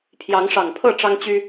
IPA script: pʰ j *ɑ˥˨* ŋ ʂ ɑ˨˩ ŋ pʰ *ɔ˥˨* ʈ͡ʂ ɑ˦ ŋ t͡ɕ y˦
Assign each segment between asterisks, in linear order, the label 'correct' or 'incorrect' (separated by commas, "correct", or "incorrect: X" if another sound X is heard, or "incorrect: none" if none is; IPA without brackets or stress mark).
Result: incorrect: ɑ˨˦, incorrect: ɤ˥˨